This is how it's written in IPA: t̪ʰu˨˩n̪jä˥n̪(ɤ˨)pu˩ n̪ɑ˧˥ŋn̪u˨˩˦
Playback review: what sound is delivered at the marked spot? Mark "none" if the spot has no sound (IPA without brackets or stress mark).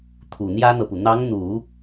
ɤ˨